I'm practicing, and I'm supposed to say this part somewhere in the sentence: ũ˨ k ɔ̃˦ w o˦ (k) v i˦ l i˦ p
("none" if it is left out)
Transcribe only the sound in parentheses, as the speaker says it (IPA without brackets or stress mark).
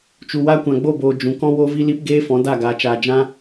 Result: none